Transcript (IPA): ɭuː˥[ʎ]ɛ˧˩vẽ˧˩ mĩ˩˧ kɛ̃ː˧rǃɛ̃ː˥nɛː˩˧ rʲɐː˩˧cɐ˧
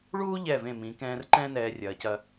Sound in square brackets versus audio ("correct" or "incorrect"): correct